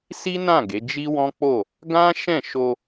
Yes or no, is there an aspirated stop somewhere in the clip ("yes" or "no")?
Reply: no